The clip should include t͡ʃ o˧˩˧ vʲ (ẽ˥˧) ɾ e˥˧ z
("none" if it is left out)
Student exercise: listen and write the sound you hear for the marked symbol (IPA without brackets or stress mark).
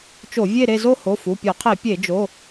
e˥˧